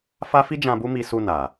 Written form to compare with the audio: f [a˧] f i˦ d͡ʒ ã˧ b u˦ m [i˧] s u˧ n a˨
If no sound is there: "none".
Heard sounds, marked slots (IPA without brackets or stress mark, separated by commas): a˦, i˧